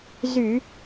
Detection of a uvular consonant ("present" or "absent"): absent